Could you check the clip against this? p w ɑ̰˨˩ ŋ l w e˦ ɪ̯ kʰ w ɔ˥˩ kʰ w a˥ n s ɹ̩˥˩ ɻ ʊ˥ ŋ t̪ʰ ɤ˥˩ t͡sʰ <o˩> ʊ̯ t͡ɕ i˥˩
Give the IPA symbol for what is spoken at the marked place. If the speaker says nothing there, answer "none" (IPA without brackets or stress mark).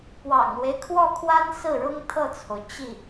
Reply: o˩